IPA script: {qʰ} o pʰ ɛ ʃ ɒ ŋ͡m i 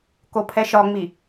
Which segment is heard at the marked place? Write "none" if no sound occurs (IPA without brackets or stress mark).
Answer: k